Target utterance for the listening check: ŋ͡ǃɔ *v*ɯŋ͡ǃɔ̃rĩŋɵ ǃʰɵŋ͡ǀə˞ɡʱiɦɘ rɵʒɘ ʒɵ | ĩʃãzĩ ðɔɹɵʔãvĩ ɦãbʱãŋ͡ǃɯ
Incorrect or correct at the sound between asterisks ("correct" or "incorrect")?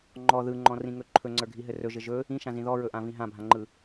incorrect